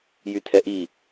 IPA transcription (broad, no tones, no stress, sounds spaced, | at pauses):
j y tʰ ɛ ʔ i